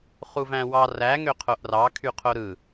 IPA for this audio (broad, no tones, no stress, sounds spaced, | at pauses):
χ u v æ̃ w ɑ r æ ŋ ø qʰ o ʔ r ɑ kʰ y qʰ o ɾ ɯ